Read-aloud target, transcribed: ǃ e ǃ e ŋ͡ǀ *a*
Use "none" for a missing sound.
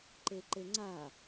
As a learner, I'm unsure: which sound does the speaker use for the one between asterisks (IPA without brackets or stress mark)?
a